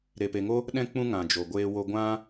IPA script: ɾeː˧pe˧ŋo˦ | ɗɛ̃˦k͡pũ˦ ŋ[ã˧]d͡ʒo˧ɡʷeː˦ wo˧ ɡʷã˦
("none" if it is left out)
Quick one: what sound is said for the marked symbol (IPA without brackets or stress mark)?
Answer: ã˧